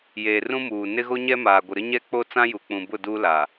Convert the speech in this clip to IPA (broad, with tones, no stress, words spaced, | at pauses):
jeː˨rũ˦muː˨ nɪ˦ɣo˦ɲɛ˦maː˨ ɡʷɪ˨ɾɪ˦ɲɛ˦k͡po˦ t͡sã˦ju˨k͡pũ˨bʊ˦˨ duː˦la˨